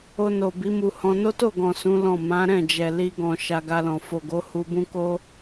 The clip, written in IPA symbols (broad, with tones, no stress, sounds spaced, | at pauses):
o˧ n o˨ b i˨˦ m u˧ h ɔ̃˧ n o˦ t o˦˨ ɡ ɔ̃˨ s ũ˨˦ l ɔ̃˦˨ m ã˨˦ ɾ ɛ̃˦˨ d͡ʒ ɛ˨ l i˧ ɡ ɔ̃˨ ʃ a˧ ɡ a˧ l ɔ̃˨ f o˨ ɡ o˨˦ h u˧ b ũ˦ k o˦